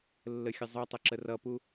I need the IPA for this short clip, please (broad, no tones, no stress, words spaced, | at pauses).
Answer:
lːəxʲəzˤutˤə ǁərʌpu